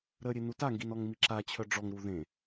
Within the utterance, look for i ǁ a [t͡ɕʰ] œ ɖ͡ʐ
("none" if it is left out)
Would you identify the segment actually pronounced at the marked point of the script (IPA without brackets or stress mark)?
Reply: t͡ɕʰ